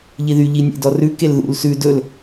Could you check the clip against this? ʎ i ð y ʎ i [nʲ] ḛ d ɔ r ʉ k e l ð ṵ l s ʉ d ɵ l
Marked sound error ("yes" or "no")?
no